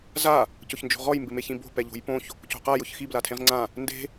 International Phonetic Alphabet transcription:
z a | c ʊ ç n d͡ʒ o̤ ʁ ɔ j m b ɪ m e ç ĩ b o̤ p ɛ ʎ o̤ j p õ ç | c o̤ q a j ʊ ç x i b l a tʰ ẽ ʁ ŋ͡ǀ ã | n d e̤

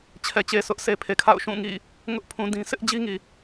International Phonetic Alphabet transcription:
t͡ɕʰ ɛ˨ t͡ɕ e˨ s ʊ˦ ʔ s e˨ pʰ e˨ kʰ a̰˦˨ ʊ̯ ʃ ũ˦˨ ŋ ḭ˦˨ | ŋ ʊ˦ ʔ pʰ ũ˨ d ĩ˦ s ɪ˦ ʔ d͡ʑ i˦ ŋ i˨

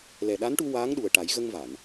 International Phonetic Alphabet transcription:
l ɛ˨˩ ɗ a˧˥ n ʈ u˧ w aː˧˥ ŋ ɗ u˨˩ ə̯ ʈ a˨˩˦ j ɣ ə˧ ŋ v a˨˩˨ n

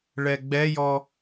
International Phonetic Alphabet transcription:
ɭ ɛ ɡ͡b ɛ j ɔ

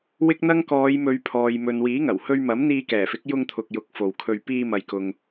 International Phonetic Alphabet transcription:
w ɪ˥ k̚ n̪ ɐ˥ ŋ k ɔː˨˧ j m ɵ˨˧ ɥ pʰ ɔː˨ j m ɵ˨ n w iː˨˥ ŋ ɐ˨˩ w h ɵ˧ ɥ m ɐ˨˥ m n̪ iː˧ k ɛː˨˩ f ɪ˨˥ k̚ j ʊ˧ ŋ t̪ʰ ʊ˨ k̚ j ʊ˨˥ k̚ f o˨ w kʰ ɵ˧ ɥ p iː˧ m ɐ˨ j k ʊ˨ ŋ

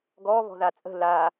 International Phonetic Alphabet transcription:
ɡ ɔ β ɔ̤ ð a t͡sʼ ə̤ l a

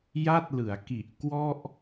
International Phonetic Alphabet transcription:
j a˥˩ t̚ l ɯ˩˦ a̯ k i˨˩ ʔ k w ɔ˥˩ ʔ

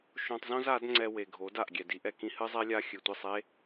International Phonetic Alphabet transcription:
ʃ õ˧ tˤ z õ˦ z a˨˦ d ŋ͡ǀ ɛ˧ w e˨ ɡʱ o˨˦ d a˨ ʔ ɡʲ ɛ˨ d i˦ ʔ ɛ˨ k ĩ˧ h ɨ˦ zˤ ɛ˦ lʲ a˦ xʲ ɨ˨ tʷ i˦˨ sˤ e˦

